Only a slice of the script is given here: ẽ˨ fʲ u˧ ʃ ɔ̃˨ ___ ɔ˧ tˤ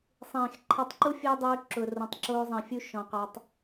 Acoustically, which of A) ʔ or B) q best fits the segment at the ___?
B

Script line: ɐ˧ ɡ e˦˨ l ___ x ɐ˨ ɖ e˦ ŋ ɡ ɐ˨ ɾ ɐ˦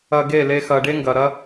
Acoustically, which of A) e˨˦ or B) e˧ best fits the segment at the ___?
B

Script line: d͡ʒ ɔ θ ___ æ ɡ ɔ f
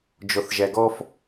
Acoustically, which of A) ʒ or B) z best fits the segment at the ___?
A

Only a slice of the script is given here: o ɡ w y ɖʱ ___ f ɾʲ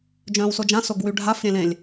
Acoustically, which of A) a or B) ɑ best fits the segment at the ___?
A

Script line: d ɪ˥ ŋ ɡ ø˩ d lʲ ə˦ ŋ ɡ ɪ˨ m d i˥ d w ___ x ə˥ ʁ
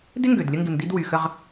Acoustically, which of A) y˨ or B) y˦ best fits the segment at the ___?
A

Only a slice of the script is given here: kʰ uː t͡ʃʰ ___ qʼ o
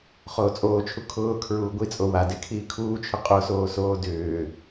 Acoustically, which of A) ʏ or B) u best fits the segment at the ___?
A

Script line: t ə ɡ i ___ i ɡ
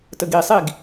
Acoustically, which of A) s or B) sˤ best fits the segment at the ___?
B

